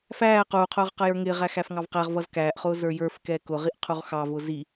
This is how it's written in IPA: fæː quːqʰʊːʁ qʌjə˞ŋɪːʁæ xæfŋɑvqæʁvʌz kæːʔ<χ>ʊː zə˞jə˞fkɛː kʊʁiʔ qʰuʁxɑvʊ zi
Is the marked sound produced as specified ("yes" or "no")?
yes